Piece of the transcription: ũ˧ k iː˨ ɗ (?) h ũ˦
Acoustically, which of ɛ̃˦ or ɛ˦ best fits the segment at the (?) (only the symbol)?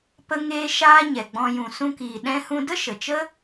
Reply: ɛ̃˦